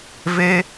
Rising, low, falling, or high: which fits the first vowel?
high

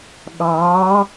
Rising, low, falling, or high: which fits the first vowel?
rising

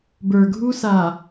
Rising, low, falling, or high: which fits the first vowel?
low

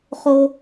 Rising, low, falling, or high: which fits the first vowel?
high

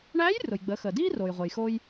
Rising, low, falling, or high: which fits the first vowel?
rising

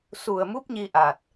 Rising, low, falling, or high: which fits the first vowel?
low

